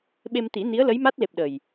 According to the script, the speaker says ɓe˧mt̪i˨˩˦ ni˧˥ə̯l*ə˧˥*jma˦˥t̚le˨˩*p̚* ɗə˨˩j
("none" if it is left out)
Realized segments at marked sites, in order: ə˧˥, p̚

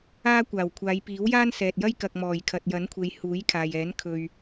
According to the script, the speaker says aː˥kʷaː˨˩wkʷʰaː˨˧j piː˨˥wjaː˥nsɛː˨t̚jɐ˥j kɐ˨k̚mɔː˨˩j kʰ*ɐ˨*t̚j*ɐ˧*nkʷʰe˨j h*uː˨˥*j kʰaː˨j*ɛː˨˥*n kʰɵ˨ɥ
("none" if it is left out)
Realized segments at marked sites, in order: ɐ˨, ɐ˨˥, uː˨˥, ɛː˨˥

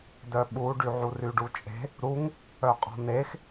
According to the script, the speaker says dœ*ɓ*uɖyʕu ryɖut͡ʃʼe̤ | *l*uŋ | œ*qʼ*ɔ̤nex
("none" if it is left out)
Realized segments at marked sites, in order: ɓ, ɾ, qʼ

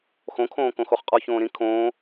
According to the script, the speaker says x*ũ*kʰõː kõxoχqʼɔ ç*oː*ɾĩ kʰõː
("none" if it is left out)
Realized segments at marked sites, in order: õ, õː

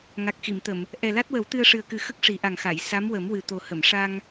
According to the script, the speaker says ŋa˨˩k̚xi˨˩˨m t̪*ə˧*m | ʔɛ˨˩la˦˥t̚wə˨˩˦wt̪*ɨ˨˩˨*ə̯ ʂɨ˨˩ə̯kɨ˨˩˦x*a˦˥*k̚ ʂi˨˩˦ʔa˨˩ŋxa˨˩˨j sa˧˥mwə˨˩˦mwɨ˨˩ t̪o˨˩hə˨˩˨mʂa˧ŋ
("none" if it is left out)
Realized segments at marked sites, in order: ə˨˩˨, ɨ˧, ə˦˥

